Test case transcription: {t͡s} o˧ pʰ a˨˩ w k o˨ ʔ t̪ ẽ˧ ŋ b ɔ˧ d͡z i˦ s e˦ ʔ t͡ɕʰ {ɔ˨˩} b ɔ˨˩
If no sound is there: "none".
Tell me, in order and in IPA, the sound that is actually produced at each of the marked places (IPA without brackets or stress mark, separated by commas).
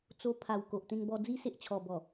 t͡s, ɔ˨˩